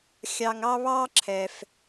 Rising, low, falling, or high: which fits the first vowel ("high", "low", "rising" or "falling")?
high